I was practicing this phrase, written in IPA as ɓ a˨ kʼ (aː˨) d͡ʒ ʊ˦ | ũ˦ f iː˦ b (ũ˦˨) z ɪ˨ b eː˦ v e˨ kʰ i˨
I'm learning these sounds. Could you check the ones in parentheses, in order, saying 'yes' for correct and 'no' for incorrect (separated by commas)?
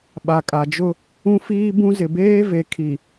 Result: no, no